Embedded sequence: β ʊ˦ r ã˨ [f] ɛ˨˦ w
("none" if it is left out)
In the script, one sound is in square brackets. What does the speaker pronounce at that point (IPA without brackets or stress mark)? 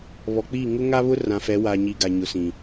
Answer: f